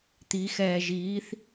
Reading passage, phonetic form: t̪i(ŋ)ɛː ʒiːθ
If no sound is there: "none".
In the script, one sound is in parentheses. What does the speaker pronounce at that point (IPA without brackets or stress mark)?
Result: x